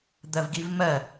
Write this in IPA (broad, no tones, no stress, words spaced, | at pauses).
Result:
d̪ɜvɡivmɜ